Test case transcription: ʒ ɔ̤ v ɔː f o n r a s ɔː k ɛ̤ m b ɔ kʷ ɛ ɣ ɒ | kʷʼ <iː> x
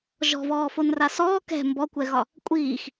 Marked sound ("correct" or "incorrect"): correct